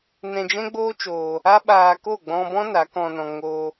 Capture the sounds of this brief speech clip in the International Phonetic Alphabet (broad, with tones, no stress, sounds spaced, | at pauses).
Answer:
n ɛ̃˧ d͡ʒ ɛ̃˦ ɡ͡b oː˦ t͡ʃ oː˧ | a˦ ɓ aː˧ k o˦˨ ɡ͡b ɔ̃˧ b ɔ̃˦ n a˨˦ k ɔ̃˧ n ɔ̃˧ ŋ o˦